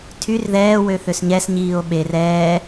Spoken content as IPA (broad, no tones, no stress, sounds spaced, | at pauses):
tʰ y r ð ɛː w ø θ ø s ɲ ɛ s ɲ iː o̯ ɓ e r ɛː